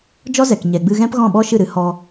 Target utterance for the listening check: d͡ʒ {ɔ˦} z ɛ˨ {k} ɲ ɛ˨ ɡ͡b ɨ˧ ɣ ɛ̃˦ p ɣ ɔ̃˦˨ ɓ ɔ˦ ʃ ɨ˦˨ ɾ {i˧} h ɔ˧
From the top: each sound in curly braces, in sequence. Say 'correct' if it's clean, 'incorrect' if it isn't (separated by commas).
correct, correct, incorrect